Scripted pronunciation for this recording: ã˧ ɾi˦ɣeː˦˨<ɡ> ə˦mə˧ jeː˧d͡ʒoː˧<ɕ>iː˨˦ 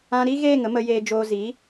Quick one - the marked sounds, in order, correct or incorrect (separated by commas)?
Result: incorrect, incorrect